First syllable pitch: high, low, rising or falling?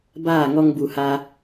falling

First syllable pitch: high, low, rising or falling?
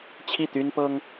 falling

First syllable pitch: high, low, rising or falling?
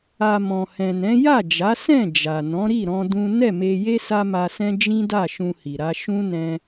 low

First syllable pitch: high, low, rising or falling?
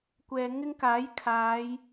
low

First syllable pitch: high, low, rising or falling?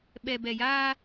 low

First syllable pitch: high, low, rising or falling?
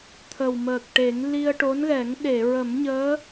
low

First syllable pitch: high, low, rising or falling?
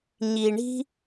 low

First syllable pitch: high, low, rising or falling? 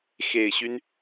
low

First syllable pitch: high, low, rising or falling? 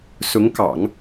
rising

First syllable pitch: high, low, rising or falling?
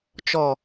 low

